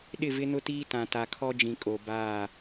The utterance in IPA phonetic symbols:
ɗ ɪ˦˨ v ɪ˦ n ʊ˦ t iː˦ t ã˨ t a˨ kʰ ɔ˦ d͡ʒ ĩ˨ kʼ o˨ b aː˦˨

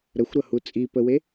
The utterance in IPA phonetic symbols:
ɾ ə xʷ ɾ ʌ h u t͡sʼ i p ə w e

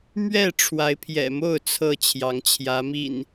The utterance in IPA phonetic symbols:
m ɥ ɛ˥˨ ʈ͡ʂʰ w a˨˦ ɪ̯ pʰ j ɛ̰˨˩ m o˥˨ ʊ̯ t͡sʰ ɤ˥˨ t͡ɕʰ j ɑ˨˦ ŋ t͡ɕʰ j ä˨˦ m ḭ˨˩ n

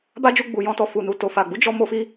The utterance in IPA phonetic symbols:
b a˦ d͡ʒ u˧ ɡ͡b u˨ j ɔ̃˧ t ɔ˨ f u˨ n u˨ t o˨ f a˨ ɡ͡b u˨˦ d͡ʒ ɔ˧ m o˦ f i˦

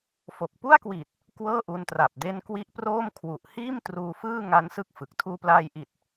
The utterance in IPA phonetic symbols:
f o˨˩ k̚ p u˥˩ a̯ k w i˨˩ t̚ | k w ɤː˥˩ ʔ u˧ n t r a˨˩ p̚ d e˦˥ n k w i˦˥ ʔ p r oː˥˩ m kʰ w u˨˩ ʔ h iː˥˩ m t r uː˧ f ɯː˥˩ ŋ a˦˥ n s ɯ˥˩ k̚ f ɯ˨˩ k̚ tʰ uː˧ p l aː˧ j ʔ i˨˩ t̚

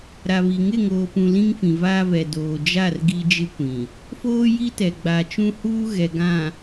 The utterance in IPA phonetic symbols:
ɾ a˨ β i˨ ŋ ɪ˦˨ ŋ oː˨ p ũ˨ l ĩ˦ ŋ f ĩ˨ v aː˦ v ɛ˨ d oː˨ d͡ʒ a˦˨ r ɡ i˦ d͡ʒ ɪ˦ kʷ ĩ˨ | f oː˦ j i˦ t ɛ˨ ɡ͡b a˨ t͡ʃ ũ˦ h uː˦ ɣ ɛ˨ ɡ ã˨

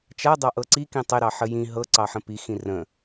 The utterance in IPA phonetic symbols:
t͡ʃ a dˤ ɑ ʔ ɤ ǀ i k ĩ tˤ e ɾ ɑ ħ ə j ĩ ɦ ɤ ǀ ɑ ħ ə̃ p i x ĩ r ə̃

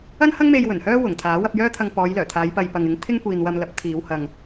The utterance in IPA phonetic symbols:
ɐ˥ n h ɐ˥ ŋ m e˧ j w ɵ˨˩ n h œː˥ w ʊ˨˩ ŋ t̪ʰ aː˨˥ w ɐ˧ p̚ j œː˥ t̪ʰ ɐ˧ ŋ p ɔː˨˧ j l œː˨˩ t̪ʰ aː˨˧ j p ɐ˨ j p ɐ˨ ŋ ɪ˨˥ ŋ t̪ʰ ɪ˥ ŋ kʷ iː˨ n w ɐ˧ m l ɐ˨˥ p̚ t̪ʰ iː˨˧ w h ɐ˨ ŋ

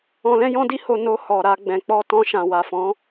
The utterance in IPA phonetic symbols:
ɔ̃˧ l ɛ̃˦ j ɔ̃˦ d i˦ h o˧ n o˧ h ɔ˨ ɾ a˧ ɡ͡b ɛ̃˨ k͡p ɔ˧ t ɔ̃˧ ʃ ã˨ w a˨ f ɔ̃˨˦

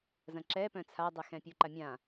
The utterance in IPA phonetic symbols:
z ɐ̃ ǁ ɛ p œ̃ t͡sʰ a dˤ ɛ x ɛ̃ pʲ u ǃ a mʲ ã

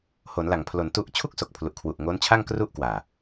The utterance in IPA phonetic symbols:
h o˩˦ n l a˨˩ ŋ pʰ l o˩˦ n t u˦˥ ʔ t͡ɕʰ u˥˩ k̚ s o˨˩ k̚ pʰ l u˨˩ ʔ kʰ w u˨˩ ʔ ŋ o˦˥ n t͡ɕʰ a˥˩ ŋ k r u˥˩ ʔ k w aː˨˩

